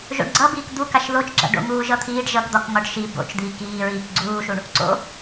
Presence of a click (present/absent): present